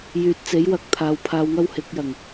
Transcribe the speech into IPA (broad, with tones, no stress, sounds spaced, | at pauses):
j yː˨ t̚ t͡s e˨˥ j w ɐ˨˥ k̚ t̪ʰ aː˨˧ w pʰ aː˧ w ŋ ɐ˥ w h ɪ˨˥ k̚ j ɐ˨˩ ŋ